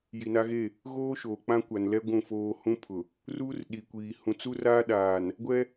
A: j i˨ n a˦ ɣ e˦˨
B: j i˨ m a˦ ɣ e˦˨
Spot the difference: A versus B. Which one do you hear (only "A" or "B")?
A